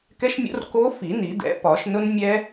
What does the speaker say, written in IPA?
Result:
k ɛ˦˥ ʃ mʲ o̰˦˥ r k o˦˥ f i˨˩˦ n i˨˩˦ d̪ ɛ̰˨˥ p ɒ˨˩˦ ʃ n ʊ˦˥ n mʲ ɛ˦˥

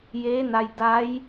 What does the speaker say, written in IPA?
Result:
j eː˧˥ n a˧ j d a˧˥ j

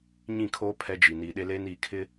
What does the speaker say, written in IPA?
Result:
ɲ ĩ˦˨ kʰ oː˦ pʰ ɛ˦ d͡ʒ i˨ n iː˨ ɗ e˦ l eː˦ n iː˨ kʰ ɪ˦

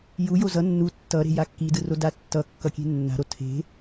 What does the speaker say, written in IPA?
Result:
j u j o z ʌ nː u tː ʌ ɾ e̤ j a kː i d ɯ r o d a tː ʌ kː ʌ kʲ e̤ nː a̤ ɾ o tʰ e̤

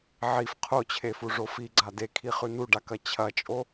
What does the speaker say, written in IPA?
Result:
ʕ i f qʰ o t͡ɕʰ e f u ʐ o f i ɡ͡ǀ a d e kʰ i χ ʉ n u ɖ a k ɐ t͡ɕʰ ɐ t͡ʃʼ o

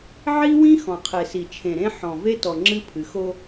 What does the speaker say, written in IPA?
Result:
ʕ i˦ w ĩ˦ x ɔ̃˨ qʰ e˨ s i˨ t͡ʃʰ ẽ˨ ɾ ẽ˦ ħ ɔ̃˨ v e˦ t ɔ˨ ŋ͡ǁ ɨ˦ pʰ ɨ˨˦ x o˦

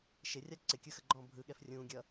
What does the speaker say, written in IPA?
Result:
ʃ ɪ rʲ a ǀ ɪ kʲ ɯ x ə ɡ͡ǃ ɔ̃ː bʱ ɯ ɠ ɛ f rʲ ũː ɡʲ ʌ

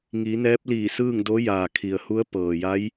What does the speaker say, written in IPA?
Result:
ŋ i˩˧ n ɛː˧˥ p̚ l iː˧˩ s ɯː˥˨ ŋ d o˧˥ j aː˩ kʰ i˩ ə̯ h u˧˥ ə̯ p ɤː˩ j a˧˥ j

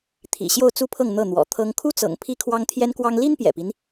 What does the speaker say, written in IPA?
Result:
t̪ʰ ḭ˨˩ ɕ j o˥˧ ʊ̯ t͡s u˥˧ pʰ ɤ˥˧ ŋ n̪ ɤ˥˩ n̪ w ɔ̰˨˩ t̪ʰ ɤ˥ ŋ kʰ u˥ t͡s ɤ̰˨˩ ŋ pʰ i˥ kʰ w ɑ˥ ŋ t̪ʰ j ɛ˥ n k w ɑ˥ ŋ l i˥ n p j ɛ̰˨˩ p i˦ n

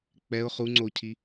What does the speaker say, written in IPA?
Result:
k͡p ɛ ʊ̯ χ u ŋ͡ǀ o cʰ i

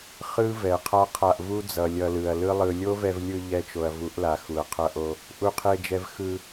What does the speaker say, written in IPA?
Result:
χ ɯ˦ v ɛ˨ qʰ a˦ qʰ a˧ ʔ v u˦ d͡z ʌ˨ lʲ ʌ˧ l ɯ˨ ɐ̯ l ɯ˦ lˠ ɯ˧ lʲ o˦ v ɛ˧ v lʲ ɯ˧ ʎ ɛ˧ t͡ʃ o˨ ɐ̯ v u˨˦ ʔ l a˨ x u˨ ɐ̯ qʰ ʌ˧ ʔ o˧ | ʔ u˧ qʰ e˧ d͡ʒ ɛ˧ v x ɯ˧

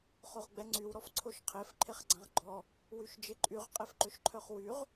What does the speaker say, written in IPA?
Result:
χ o ʁ ɡ͡b ɛ ŋ͡ǀ y w ɾ ɔ f ǀʰ o ʃ qʰ e f ǃʰ e χ ɡ͡ǀ ã ʁ ɡ͡ǃ ɔ | w y ʃ d͡ʒ e ǃʼ y ʁ qʼ e f ǃ ø ʃ ǃʰ œ χ w y ʁ

